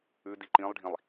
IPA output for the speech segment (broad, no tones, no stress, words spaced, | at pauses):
ʉ diǃĩlˠɖʱĩlˠ